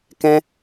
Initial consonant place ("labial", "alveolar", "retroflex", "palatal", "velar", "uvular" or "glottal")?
velar